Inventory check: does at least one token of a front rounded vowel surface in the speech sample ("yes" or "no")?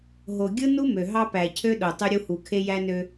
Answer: yes